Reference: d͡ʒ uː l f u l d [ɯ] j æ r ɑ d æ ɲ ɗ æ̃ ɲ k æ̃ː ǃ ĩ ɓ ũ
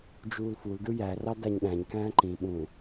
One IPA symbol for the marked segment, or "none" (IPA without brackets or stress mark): ɯ